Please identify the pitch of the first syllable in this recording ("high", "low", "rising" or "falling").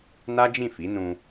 high